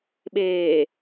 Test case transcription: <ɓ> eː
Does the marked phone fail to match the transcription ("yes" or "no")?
no